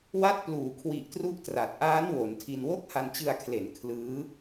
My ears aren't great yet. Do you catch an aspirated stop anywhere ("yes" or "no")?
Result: yes